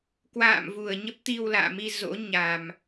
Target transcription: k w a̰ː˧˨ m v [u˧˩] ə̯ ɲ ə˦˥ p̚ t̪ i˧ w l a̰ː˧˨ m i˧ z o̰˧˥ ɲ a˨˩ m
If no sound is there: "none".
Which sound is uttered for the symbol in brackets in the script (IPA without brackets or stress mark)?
u˧˩